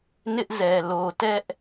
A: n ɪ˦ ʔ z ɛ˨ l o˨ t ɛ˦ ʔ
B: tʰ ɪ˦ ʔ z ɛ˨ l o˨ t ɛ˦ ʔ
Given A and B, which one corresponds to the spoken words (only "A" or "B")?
A